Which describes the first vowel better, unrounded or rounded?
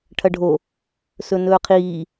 unrounded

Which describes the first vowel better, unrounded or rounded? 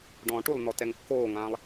rounded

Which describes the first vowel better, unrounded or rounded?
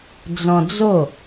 rounded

